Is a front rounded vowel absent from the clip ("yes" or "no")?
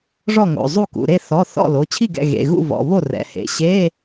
yes